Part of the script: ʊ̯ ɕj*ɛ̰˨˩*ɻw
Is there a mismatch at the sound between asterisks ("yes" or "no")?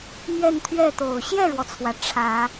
yes